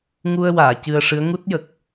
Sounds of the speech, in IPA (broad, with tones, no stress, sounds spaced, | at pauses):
ŋ u˧ ə̯ w aː˨˩˨ c ɨ˧ ə̯ ʂ ɨ˧˥ ə̯ ŋ u˦˥ t̚ j ə˨˩ k̚